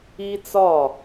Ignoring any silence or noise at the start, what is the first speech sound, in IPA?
i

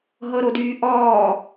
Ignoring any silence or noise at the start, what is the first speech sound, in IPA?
ɦ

